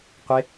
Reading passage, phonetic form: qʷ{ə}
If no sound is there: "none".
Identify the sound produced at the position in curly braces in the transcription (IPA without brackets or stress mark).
ɪ